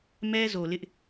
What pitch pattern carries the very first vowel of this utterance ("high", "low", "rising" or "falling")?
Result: high